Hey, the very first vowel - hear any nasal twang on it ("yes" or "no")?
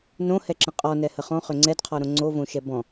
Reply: yes